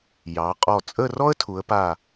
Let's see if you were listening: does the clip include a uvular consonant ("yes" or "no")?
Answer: yes